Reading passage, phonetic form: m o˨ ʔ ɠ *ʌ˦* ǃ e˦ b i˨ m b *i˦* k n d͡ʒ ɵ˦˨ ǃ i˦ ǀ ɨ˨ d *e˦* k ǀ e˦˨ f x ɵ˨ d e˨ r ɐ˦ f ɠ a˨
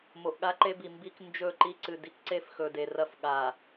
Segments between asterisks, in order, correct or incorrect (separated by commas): incorrect, correct, incorrect